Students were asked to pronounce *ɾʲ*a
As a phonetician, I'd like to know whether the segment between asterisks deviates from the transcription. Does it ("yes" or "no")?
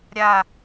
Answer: no